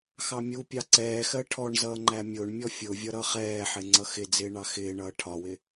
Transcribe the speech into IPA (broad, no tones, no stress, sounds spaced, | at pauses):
x ɑ mʲ u pʲ ɑ ǀ ɛː x ɜ ʈʰ ɔ ɳ z ʌː ŋ͡ǃ æ mʲ ʊː ɳ mʲ ɔ fʲ ʊ vʲ ʌ ɾ ʌ χ ɛː ħ ɪ ŋ͡ǀ ʌ x ɪ d͡z ɪː ɳ ɑ x ɪː ɳ ʌː ʈʰ ɒ w ɪ